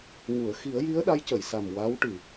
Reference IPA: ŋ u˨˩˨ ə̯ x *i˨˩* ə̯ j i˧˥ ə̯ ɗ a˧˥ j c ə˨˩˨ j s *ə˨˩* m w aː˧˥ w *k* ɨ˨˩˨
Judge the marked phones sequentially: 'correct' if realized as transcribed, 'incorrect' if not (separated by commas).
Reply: incorrect, incorrect, incorrect